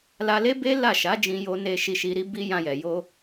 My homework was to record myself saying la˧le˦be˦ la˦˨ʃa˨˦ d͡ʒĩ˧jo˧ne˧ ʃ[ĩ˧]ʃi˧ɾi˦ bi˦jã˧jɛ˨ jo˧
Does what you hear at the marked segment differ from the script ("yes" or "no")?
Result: yes